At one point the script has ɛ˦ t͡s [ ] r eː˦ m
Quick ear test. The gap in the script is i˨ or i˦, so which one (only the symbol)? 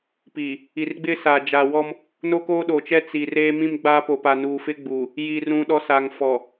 i˨